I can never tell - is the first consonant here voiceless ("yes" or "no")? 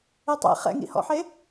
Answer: yes